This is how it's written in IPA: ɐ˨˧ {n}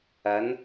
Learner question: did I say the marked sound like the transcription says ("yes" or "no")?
yes